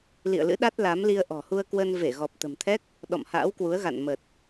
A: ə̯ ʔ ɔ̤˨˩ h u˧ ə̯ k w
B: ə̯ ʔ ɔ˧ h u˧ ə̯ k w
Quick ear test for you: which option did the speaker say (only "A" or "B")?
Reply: A